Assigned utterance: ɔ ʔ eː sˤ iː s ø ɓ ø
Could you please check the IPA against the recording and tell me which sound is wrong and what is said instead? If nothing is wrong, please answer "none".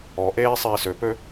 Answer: ɓ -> p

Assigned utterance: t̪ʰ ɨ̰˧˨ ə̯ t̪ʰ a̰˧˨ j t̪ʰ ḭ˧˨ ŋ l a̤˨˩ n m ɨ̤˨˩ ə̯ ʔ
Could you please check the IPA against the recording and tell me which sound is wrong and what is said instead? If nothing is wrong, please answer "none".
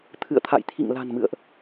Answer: ɨ̤˨˩ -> ɨ̰˧˨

